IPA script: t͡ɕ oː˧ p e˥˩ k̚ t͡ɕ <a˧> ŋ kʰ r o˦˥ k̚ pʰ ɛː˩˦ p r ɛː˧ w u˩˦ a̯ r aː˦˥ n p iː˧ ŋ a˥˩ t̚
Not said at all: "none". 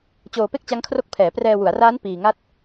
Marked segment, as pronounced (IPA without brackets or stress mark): a˦˥